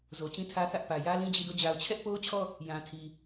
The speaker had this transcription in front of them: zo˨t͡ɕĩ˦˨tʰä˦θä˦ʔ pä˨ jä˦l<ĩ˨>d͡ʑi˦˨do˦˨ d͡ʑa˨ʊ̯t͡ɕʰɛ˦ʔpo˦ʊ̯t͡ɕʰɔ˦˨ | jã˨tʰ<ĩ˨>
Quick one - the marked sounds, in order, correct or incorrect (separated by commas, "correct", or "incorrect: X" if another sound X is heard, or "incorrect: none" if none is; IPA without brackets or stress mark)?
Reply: incorrect: ĩ˦, incorrect: i˨